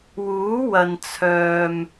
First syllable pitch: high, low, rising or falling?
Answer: rising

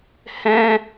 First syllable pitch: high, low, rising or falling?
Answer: high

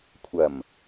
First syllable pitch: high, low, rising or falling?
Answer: low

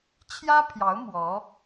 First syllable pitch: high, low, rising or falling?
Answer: high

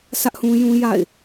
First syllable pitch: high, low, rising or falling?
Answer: high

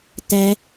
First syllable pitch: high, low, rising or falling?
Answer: high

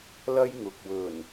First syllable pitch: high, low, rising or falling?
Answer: high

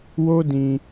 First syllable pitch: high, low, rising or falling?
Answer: high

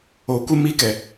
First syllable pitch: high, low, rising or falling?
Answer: low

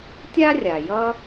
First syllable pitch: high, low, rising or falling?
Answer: high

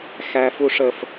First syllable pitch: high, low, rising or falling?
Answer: high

